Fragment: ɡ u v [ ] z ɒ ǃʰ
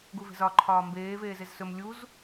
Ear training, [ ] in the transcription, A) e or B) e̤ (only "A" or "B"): B